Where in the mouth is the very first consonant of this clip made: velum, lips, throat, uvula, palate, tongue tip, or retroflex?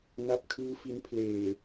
tongue tip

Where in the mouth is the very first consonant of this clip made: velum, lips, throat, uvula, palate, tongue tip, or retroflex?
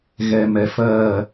velum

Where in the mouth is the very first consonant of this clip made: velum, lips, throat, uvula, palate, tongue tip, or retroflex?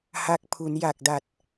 throat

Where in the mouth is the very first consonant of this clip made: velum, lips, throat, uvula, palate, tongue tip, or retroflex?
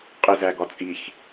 uvula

